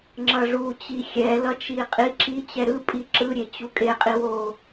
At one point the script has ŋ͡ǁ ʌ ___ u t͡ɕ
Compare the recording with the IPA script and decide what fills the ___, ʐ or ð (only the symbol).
ʐ